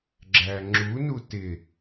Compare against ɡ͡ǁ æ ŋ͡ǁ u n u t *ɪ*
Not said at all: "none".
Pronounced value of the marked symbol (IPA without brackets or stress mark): ɪ